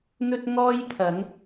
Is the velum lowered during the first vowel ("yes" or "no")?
no